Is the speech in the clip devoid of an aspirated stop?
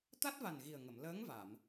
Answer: yes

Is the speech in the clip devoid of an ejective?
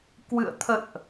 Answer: yes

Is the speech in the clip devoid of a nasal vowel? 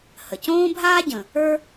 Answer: no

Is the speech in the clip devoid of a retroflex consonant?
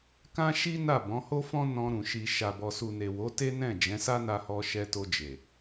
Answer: yes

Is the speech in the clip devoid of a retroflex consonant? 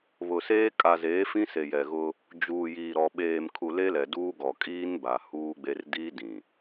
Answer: yes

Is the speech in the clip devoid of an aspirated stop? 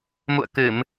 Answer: yes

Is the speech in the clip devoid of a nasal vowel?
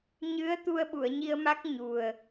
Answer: yes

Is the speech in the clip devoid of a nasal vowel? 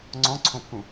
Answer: no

